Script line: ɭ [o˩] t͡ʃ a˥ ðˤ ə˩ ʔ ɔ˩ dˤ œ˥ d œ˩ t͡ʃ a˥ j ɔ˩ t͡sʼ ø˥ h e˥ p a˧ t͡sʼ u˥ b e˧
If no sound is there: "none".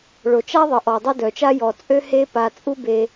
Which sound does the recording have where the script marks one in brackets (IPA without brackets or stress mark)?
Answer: o˩